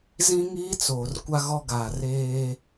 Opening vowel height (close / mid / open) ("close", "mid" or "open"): close